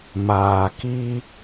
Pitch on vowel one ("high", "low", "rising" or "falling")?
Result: low